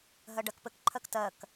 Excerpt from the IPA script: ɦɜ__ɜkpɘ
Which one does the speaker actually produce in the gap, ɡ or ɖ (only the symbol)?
ɖ